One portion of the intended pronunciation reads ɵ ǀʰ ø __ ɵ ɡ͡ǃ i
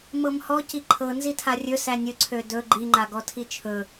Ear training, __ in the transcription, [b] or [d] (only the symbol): d